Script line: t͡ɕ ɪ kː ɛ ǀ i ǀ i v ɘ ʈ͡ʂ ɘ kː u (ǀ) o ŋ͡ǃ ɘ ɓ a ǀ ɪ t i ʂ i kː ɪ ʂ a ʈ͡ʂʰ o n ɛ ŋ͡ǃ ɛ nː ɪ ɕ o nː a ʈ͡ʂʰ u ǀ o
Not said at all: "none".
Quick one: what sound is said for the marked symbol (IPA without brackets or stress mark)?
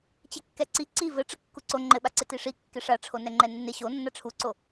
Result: ǀ